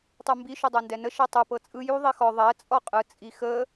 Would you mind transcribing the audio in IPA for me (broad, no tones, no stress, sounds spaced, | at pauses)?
tˤ u m b i ʃ u dˤ ɤ n d ɛ n ə ʃ ɛ tˤ u p ɤ t͡sʼ ɯ j u ðˤ i x ɔ ðˤ ɛ t͡sʼ ɔ qʼ ɯ t͡sʼ i x ə